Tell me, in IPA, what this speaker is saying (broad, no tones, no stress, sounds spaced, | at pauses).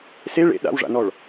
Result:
s e ɭ ḛ ɗ a̰ w ʐ a̰ n ɔ ɭ